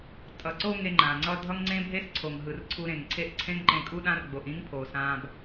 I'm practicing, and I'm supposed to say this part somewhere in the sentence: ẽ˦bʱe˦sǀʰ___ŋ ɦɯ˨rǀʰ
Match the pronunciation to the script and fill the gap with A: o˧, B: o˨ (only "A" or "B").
B